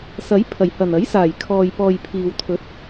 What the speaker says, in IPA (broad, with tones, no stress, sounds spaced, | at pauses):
s ɐ˨˥ j pʰ ɐ˨˩ j h ɐ˨˩ n ɐ˨˥ j s aː˨˩ j kʰ ɔː˨ j p ɔː˨ j pʰ iː˨ w t̪ʰ ɵ˨˥ t̚